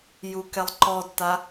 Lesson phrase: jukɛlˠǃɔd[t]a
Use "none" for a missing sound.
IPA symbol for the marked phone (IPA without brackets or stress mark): t